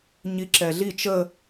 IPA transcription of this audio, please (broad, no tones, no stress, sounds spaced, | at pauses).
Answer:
ɲ i ǁ ɛ ɮ i t͡ʃ ə